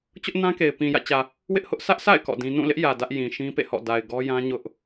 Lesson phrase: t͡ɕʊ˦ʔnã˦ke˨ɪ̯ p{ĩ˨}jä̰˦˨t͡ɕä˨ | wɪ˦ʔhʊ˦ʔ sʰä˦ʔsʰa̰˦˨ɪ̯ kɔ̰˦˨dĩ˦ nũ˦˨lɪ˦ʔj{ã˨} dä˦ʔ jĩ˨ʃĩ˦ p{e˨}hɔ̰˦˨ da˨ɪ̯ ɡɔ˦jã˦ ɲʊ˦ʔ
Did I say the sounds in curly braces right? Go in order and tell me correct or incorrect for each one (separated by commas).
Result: correct, incorrect, incorrect